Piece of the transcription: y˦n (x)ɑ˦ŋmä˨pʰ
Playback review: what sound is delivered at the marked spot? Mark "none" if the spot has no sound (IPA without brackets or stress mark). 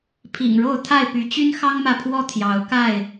x